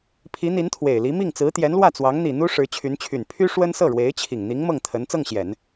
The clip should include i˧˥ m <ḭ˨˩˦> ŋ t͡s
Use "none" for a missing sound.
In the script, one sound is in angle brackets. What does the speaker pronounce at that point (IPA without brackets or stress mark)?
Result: i˥˩